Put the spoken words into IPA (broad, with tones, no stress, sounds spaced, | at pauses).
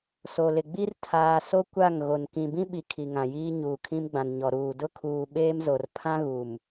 s o˨ l ɪ˨ ɡ͡b i˦ r tʰ aː˨ s o˦ kʷ a˦˨ ŋ ɣ o˨ n k ĩ˨ b ĩ˦ ɓ i˨ kʰ i˨ ŋ ã˨ j iː˦ ɲ uː˨ kʰ ĩ˦ m ɡ͡b ã˨ n ɲ ɔ˨ ɾ uː˨ d ʊ˦ kʰ uː˨ ɓ eː˦ m z o˨ r pʰ ã˦ ɣ u˨ m